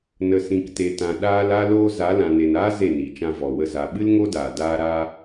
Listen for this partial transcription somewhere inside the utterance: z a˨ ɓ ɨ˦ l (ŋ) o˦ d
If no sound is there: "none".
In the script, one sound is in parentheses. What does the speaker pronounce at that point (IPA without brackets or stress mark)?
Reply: ŋ